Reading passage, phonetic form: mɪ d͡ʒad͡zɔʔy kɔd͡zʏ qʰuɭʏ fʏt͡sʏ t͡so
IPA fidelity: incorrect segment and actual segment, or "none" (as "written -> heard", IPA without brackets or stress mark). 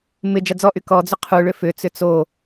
none